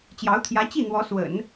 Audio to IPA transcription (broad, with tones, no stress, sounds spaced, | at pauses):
t͡ɕ j ɑ˧˥ ʊ̯ t̪ʰ j ä˧˥ t͡ɕ i˥˩ n̪ w ɔ˧˥ s w ə̰˨˩˦ n